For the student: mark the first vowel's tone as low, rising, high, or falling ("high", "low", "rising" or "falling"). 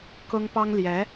high